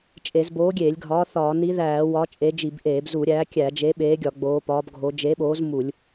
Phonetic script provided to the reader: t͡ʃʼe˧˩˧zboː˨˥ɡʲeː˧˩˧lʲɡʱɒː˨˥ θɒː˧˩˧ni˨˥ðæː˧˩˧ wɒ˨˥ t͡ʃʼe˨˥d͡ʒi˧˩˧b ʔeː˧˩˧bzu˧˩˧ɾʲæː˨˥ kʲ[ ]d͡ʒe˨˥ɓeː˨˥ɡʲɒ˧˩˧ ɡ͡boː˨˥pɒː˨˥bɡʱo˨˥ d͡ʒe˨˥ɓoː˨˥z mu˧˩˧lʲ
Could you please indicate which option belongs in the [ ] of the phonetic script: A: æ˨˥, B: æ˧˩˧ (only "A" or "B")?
B